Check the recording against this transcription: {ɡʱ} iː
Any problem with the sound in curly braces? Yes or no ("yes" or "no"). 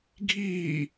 no